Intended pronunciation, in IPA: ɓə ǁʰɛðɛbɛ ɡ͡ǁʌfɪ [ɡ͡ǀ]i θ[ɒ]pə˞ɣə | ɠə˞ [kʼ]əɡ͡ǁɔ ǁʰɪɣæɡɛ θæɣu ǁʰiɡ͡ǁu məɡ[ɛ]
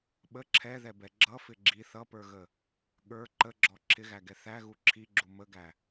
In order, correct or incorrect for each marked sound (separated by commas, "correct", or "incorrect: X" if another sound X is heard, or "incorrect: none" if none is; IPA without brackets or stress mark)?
incorrect: ɡ͡ǁ, incorrect: ʌ, incorrect: ǃ, incorrect: æ